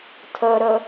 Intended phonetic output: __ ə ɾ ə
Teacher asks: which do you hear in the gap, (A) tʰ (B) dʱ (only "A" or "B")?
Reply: A